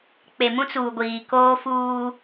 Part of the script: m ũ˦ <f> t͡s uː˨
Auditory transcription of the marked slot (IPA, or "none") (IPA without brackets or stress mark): none